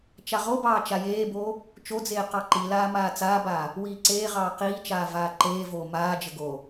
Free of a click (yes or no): no